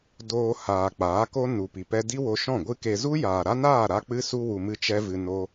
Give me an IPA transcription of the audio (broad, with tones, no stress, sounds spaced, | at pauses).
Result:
d oː˧ h aː˨ k͡p aː˨˦ k o˦ n u˨ p i˨ p ɛ˧ d i˦ w o˧ ʃ ɔ̃˦˨ ɡʷ ɨ˦ k e˧ z u˦ j aː˨ ɾ a˦ n aː˦˨ ɾ a˦ k͡p ɨ˦ s u˦ w u˧ m ɨ˦ t͡ʃ ɛ˦ v ɨ˧ n o˦